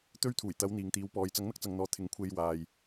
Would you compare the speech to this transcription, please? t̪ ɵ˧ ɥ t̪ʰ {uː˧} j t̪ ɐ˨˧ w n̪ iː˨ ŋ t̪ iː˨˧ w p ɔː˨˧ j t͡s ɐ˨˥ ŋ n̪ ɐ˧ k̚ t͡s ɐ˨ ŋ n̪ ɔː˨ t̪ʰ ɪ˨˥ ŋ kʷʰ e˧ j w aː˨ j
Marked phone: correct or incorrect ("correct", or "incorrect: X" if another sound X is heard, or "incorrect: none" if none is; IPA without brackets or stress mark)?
incorrect: uː˨˩